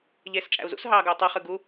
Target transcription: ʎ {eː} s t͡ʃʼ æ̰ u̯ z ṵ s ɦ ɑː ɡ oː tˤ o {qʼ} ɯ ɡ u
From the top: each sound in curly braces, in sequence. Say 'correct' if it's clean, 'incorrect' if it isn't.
correct, incorrect

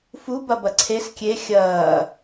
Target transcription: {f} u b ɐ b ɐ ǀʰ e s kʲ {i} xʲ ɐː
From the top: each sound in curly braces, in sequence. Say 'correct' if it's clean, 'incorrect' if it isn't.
correct, incorrect

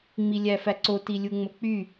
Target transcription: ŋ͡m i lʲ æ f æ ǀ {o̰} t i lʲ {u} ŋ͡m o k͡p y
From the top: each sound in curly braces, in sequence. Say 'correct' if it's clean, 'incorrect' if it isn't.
incorrect, correct

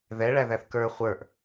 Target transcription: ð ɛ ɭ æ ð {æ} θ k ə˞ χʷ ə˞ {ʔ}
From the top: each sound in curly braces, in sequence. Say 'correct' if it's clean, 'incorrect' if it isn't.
correct, correct

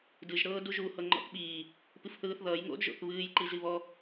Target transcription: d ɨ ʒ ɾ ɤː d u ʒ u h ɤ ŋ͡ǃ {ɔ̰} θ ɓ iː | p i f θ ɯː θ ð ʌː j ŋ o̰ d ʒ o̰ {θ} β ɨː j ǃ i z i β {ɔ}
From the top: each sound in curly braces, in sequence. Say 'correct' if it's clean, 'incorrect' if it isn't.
correct, correct, correct

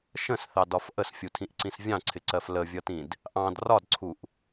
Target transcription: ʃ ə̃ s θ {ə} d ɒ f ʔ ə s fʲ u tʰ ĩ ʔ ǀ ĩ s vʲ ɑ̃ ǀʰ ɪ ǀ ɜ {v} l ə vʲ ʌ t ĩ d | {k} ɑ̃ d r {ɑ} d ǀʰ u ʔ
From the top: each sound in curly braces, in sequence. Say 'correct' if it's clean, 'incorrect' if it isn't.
incorrect, incorrect, incorrect, incorrect

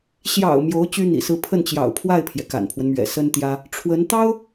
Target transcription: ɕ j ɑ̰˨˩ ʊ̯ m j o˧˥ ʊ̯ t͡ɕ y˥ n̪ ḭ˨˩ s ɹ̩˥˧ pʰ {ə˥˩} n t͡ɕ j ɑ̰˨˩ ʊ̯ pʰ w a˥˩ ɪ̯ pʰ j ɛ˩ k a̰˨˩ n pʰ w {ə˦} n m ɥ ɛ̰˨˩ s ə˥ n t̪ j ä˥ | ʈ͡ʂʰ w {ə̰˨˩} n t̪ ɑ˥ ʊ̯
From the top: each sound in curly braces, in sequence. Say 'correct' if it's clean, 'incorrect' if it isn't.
correct, correct, incorrect

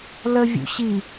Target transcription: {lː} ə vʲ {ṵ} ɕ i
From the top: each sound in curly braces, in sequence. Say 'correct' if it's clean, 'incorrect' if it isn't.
incorrect, correct

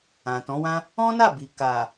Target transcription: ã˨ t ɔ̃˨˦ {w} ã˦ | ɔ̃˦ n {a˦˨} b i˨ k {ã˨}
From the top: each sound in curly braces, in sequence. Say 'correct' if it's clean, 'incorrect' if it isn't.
correct, correct, incorrect

